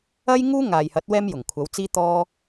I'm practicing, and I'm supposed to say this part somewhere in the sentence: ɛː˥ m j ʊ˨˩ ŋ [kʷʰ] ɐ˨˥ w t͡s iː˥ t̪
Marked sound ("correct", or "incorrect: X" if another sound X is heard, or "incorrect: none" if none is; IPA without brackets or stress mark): correct